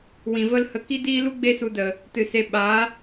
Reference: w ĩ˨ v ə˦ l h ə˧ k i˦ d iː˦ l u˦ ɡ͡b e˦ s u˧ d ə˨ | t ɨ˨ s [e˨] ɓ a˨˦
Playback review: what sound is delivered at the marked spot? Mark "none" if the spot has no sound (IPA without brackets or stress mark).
e˧